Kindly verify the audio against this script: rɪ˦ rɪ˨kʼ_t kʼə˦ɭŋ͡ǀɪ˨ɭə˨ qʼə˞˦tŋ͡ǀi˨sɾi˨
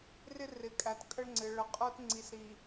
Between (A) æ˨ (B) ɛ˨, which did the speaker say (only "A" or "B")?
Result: A